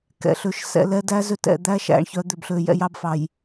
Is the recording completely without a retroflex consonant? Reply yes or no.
no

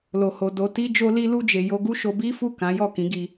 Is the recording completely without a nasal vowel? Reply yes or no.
no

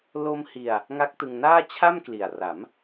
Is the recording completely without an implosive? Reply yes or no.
yes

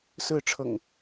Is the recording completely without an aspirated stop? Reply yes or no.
no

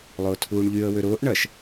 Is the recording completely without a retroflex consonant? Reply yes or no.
no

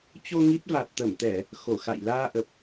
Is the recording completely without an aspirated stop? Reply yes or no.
yes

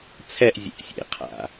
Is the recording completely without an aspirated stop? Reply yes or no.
no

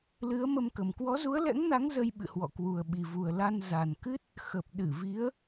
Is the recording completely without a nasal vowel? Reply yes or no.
yes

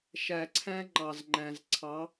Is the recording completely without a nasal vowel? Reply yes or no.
no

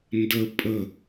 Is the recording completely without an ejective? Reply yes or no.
no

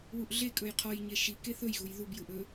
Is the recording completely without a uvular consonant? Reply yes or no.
no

